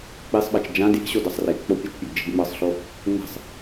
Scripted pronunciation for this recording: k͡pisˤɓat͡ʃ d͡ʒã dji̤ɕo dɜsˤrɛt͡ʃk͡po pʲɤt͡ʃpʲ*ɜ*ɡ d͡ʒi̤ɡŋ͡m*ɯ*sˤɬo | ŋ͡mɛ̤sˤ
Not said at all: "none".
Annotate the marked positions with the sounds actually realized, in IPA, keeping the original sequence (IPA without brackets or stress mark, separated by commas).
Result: ɜ, ɤ